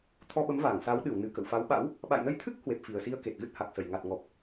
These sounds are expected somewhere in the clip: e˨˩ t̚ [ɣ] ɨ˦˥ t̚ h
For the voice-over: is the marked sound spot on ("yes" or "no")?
yes